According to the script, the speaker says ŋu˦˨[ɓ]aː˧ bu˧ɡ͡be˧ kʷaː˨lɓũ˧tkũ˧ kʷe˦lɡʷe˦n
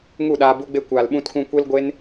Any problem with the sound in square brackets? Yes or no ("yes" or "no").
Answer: yes